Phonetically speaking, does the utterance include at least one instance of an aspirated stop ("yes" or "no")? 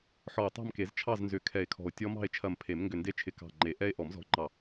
yes